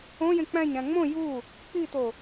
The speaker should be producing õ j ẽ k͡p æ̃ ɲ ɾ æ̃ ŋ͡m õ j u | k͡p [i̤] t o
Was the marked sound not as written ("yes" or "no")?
yes